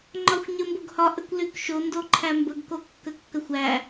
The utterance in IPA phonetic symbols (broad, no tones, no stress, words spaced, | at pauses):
ŋ͡ǃɒxʷɲəmboɡhɒʔ əkʷlykʃo ndoǃʰæmbəɡ kokːəkːəxʷæ